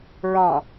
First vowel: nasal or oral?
nasal